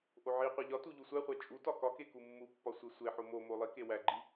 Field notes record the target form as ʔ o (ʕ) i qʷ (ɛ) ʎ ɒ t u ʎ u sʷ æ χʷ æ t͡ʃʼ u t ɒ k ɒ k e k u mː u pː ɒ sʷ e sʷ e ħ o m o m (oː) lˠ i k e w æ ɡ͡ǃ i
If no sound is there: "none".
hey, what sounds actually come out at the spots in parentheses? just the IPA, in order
ʕ, e, o

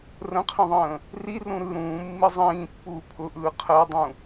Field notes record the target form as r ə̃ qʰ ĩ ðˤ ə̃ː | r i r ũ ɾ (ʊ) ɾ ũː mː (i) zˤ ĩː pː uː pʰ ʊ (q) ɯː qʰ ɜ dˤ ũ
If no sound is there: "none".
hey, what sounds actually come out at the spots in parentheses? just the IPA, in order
ɯ, i, ʔ

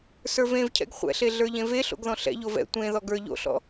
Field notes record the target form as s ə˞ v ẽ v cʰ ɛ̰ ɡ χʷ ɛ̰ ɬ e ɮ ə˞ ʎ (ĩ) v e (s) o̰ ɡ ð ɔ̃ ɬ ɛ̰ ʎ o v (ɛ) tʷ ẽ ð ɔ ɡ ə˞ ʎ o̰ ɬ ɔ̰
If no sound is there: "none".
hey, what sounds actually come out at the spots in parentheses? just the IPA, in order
ẽ, ɬ, ɛ̰

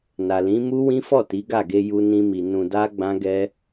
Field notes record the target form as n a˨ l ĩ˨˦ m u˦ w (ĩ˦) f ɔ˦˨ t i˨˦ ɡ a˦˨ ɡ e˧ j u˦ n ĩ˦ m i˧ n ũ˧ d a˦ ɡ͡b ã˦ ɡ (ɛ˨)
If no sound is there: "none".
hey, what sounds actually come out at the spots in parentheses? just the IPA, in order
ĩ˦, ɛ˦

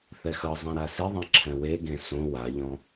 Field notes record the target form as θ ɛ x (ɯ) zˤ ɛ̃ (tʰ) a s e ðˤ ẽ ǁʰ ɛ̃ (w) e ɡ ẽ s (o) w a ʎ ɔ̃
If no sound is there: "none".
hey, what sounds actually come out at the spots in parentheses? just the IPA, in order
ɤ, ɾ, w, õ

